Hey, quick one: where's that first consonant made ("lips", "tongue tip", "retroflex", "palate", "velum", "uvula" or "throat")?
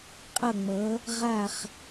uvula